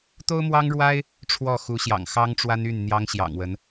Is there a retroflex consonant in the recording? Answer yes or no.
yes